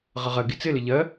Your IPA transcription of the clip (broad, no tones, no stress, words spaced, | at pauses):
ʁəʁɜ ɡit͡sɪlɪ ʎɜ